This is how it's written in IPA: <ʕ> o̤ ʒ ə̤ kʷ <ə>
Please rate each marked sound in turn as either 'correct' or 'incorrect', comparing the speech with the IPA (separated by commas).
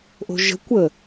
incorrect, correct